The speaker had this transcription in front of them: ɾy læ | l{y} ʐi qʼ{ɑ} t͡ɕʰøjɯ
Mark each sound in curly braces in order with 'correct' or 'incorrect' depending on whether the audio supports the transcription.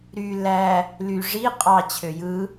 correct, correct

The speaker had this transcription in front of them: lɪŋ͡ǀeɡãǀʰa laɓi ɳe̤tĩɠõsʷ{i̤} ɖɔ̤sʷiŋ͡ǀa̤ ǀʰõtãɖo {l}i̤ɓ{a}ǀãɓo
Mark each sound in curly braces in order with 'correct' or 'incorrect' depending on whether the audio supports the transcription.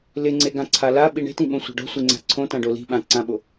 incorrect: e̤, correct, incorrect: ã

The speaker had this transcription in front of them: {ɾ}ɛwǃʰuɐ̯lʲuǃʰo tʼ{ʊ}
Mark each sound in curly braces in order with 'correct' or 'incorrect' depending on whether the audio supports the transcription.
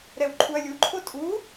correct, incorrect: u

